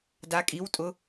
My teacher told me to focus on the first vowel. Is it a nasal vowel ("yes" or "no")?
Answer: no